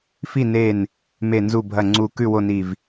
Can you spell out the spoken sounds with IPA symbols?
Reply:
fi˥˨ ne˧˩n | me˧˩nzu˧˩ bʱɐ˧˩ ŋ͡ǀu˧˩ kʉ˥˨wo˥˨ni˧˩v

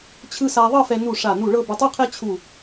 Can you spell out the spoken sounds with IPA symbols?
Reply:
t͡ɕʰɯ˧ sa˧ðˤɤ˥˧fɛ˧ nu˧˩ ʂa˧˩nu˧˩ ɭɤ˥˧bɛ˧tˤu˥ qʰɛ˥ t͡ɕʰu˧˩

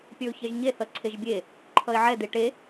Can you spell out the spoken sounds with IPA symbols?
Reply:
pʲə˞ʊ̯çɛʒɲe θʌǀʰeʒbʲe | ǃʰʌɪ̯ʕɛ d̪eʈe

